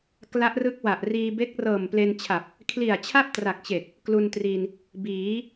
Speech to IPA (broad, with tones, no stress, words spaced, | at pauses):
kla˦˥ʔrɯ˦˥k̚ wa˨˩ʔ riː˧ be˦˥k̚rɤː˨˩mple˧nt͡ɕʰa˨˩p̚ | kʰli˨˩a̯t͡ɕʰa˥˩p̚tra˨˩k̚t͡ɕe˨˩k̚ | klu˧ntri˧n | biː˩˦